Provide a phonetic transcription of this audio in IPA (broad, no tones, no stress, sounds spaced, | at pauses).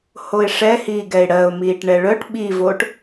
h o ɪ̯ ʂ ɛ h iː ɡ ɛ ɪ̯ ɽ ɜ ʊ̯ m iː ʈ ɳ ɛ ɭ œ ʈ ɓ i v oː ʈ